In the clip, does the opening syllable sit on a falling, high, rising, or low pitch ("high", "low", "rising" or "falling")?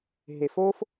low